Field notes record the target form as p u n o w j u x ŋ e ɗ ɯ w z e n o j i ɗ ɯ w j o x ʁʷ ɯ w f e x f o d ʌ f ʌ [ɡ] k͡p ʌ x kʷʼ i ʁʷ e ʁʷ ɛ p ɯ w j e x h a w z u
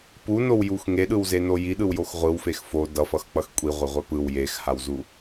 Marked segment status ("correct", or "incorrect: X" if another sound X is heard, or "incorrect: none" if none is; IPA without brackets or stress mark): incorrect: x